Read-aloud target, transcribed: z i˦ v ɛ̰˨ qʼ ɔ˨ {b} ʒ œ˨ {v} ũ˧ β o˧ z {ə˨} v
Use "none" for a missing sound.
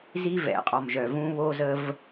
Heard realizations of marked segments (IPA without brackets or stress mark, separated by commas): m, v, ə˧